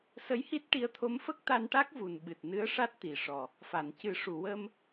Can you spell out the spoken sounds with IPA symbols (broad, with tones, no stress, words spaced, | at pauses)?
sə˧˥jhi˦˥t̚ʈi˧˥ə̯ t̪ʰo˧˥mfə˦˥k̚t̪a˧nʈa˦˥k̚ vu˨˩nɓɨ˨˩t̚nɨ˧˥ə̯ʂa˦˥t̚ t̪i˨˩ʂɔ˨˩ | fa˨˩˨ncɨ˨˩˦ʂu˨˩˨ wə˧m